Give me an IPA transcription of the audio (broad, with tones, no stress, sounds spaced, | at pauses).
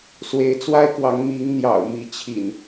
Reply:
s w e˨˦ ɪ̯ t͡s w a˦ ɪ̯ k w ɑ˨˦ ŋ m i˨˦ ŋ n̪ j ɑ̰˨˩ ʊ̯ m i˨˦ t͡ɕʰ ḭ˨˩ n